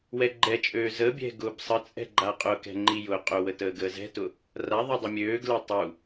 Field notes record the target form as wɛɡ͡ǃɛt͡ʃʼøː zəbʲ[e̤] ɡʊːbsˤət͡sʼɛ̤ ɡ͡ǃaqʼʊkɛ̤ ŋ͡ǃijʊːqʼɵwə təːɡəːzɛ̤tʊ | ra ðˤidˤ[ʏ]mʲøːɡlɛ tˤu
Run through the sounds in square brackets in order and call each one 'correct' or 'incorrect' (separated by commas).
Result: incorrect, correct